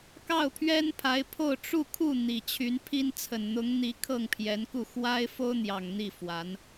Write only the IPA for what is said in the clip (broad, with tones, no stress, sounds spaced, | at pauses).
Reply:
k ɑ˥˩ ʊ̯ pʰ ɥ ɛ˥ n pʰ a˧˥ ɪ̯ pʰ o˥˧ ʊ̯ ʈ͡ʂ u˥˧ kʰ u˥˩ n̪ i˨˩ t͡ɕʰ y˧˥ n pʰ i˥ n t͡sʰ ə˨˩ n n̪ ʊ˧˥ ŋ n̪ i˧˥ kʰ ɤ˥˩ ŋ pʰ j ɛ˧˥ n k u˥˩ x w a˥ ɪ̯ f o˥ ʊ̯ n̪ j ɑ˨˩ ŋ n̪ i˥˩ f w a˧˥ n